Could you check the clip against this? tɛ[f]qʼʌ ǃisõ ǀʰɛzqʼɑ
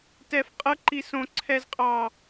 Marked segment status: correct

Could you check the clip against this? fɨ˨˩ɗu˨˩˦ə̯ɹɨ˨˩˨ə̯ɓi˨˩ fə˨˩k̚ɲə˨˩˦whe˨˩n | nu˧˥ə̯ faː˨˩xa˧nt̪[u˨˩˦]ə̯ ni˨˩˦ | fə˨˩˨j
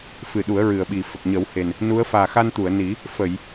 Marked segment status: incorrect: u˨˩˨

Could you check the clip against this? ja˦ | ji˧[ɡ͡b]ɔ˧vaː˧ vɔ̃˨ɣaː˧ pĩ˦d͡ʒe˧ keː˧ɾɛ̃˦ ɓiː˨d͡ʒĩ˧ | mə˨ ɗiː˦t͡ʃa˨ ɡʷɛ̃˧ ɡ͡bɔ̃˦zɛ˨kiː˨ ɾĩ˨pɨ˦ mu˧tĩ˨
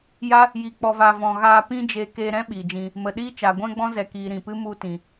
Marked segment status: incorrect: k͡p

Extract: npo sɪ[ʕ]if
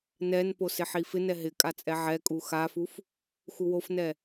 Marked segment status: incorrect: ħ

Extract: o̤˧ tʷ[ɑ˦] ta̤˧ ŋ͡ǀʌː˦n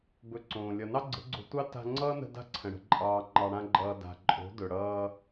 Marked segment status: correct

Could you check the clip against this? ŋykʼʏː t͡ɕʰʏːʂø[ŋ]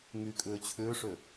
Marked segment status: incorrect: none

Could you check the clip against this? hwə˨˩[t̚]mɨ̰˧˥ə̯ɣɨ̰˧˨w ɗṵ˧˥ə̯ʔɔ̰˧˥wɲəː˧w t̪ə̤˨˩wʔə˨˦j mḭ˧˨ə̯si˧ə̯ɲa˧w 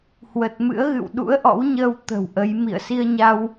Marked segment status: correct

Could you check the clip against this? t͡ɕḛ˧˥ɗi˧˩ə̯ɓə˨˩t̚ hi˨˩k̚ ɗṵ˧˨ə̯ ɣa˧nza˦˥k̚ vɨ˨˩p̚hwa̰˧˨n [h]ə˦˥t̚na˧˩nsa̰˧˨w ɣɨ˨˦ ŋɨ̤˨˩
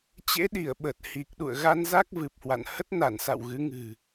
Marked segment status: correct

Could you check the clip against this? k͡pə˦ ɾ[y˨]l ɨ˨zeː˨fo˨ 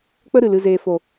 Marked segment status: incorrect: ɨ˨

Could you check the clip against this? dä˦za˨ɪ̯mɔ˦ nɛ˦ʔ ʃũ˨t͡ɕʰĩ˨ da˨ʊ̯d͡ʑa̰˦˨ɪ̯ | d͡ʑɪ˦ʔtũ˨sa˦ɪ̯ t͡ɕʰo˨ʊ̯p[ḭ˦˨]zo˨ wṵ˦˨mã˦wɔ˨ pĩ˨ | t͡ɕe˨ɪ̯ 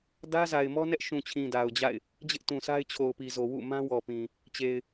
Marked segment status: incorrect: i˨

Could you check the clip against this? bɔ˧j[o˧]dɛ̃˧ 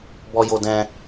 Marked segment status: correct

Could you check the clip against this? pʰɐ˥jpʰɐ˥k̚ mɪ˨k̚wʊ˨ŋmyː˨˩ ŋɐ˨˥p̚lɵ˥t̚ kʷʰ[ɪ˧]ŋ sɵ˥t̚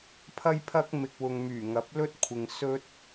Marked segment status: correct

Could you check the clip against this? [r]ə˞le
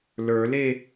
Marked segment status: incorrect: l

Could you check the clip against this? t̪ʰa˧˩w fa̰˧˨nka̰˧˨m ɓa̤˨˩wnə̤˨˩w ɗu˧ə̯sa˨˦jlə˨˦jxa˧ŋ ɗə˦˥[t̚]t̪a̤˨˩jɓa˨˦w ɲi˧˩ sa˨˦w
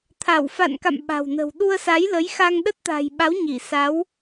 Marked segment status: correct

